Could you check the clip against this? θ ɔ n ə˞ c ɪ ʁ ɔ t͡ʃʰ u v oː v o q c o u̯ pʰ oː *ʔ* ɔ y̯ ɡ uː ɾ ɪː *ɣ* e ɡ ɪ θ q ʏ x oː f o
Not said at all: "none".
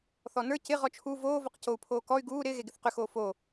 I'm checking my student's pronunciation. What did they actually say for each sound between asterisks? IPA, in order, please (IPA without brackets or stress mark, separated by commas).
k, ɣ